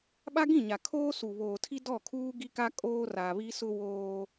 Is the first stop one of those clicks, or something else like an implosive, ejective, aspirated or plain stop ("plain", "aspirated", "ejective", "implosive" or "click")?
implosive